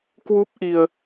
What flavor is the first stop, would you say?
plain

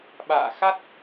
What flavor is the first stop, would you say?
implosive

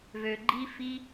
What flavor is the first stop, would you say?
click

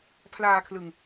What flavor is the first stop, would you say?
aspirated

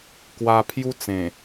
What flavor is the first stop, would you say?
plain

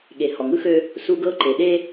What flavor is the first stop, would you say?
implosive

